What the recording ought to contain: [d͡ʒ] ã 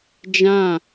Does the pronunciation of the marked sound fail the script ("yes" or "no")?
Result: no